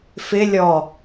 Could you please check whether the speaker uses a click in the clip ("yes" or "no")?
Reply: no